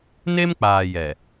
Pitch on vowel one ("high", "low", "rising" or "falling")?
high